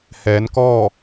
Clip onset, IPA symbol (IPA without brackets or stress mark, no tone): h